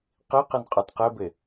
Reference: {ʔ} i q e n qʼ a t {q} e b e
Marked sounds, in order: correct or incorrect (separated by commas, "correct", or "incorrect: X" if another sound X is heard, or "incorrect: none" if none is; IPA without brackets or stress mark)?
incorrect: q, correct